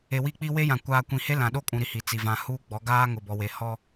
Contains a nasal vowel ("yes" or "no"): yes